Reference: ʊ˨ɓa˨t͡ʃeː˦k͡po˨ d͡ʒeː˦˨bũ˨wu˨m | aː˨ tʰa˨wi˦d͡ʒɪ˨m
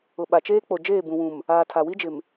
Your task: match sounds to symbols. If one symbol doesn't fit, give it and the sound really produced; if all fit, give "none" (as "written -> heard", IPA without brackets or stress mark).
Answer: u˨ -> ũ˨